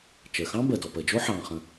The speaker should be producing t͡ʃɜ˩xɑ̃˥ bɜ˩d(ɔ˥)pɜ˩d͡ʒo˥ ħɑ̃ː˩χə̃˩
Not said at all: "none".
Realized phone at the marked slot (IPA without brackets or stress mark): ɔ˩